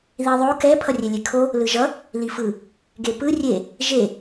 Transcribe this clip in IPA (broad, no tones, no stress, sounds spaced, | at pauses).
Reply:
ð i ðˤ o k ɛ pʰ ʌ rʲ e lʲ e kʰ o | l ɯ ʒ ʌ | l i f ɯ | ɡ e p ɯ rʲ e | ʒ e